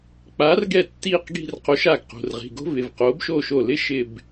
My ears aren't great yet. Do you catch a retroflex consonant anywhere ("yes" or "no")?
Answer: no